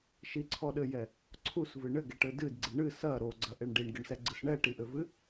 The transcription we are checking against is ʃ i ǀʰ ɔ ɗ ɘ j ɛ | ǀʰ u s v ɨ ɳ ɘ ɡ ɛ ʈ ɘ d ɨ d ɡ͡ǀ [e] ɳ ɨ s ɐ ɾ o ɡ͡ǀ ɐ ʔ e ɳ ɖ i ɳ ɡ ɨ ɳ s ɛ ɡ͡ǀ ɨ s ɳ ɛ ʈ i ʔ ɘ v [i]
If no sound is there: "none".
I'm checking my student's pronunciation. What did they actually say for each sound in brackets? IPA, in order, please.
ɨ, ɨ

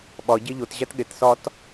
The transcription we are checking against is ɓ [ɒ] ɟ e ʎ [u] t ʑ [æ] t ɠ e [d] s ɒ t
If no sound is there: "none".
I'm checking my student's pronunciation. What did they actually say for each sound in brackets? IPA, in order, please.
ɒ, o, æ, t

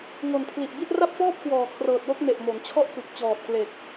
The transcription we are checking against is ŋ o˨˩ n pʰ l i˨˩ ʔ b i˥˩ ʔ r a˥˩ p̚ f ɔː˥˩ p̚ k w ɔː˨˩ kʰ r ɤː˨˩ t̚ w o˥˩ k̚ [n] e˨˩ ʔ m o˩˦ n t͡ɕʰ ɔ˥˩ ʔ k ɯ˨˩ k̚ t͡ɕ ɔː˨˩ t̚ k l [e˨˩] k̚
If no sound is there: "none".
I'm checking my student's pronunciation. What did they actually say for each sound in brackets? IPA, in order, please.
n, e˨˩

